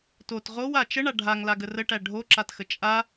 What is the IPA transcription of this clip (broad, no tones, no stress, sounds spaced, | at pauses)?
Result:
t o t ʁ o w a t͡ʃ ə ɳ a ɖʱ a ŋ l a ɡ ə r ə ʈ æ ɖʱ o ǁ a t x ə t͡ʃʼ a